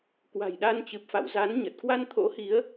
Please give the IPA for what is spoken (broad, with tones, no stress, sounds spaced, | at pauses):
k w a̤˨˩ j ɗ a˧ n t͡ɕ ɨ˨˩ p̚ f a̰˧˨ w z a˨˦ n ɲ ə˨˩ t̚ k w a˧ n t̪ʰ o̰˧˥ h i˨˦ ə̯